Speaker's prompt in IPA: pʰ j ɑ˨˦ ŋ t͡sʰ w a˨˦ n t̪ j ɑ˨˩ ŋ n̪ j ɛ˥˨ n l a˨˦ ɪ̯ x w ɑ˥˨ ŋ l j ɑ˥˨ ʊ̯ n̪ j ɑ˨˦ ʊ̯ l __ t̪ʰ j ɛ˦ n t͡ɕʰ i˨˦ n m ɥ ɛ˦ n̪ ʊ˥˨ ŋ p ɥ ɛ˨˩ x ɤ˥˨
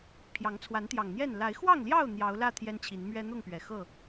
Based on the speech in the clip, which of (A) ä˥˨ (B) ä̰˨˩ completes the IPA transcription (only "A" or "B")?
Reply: A